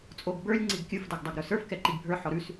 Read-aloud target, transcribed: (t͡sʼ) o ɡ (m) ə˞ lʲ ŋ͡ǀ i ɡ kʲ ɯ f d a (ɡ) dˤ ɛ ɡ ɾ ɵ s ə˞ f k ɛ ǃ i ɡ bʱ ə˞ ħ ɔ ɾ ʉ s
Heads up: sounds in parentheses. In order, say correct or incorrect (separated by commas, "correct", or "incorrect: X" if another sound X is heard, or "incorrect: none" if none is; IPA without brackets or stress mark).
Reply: correct, incorrect: b, correct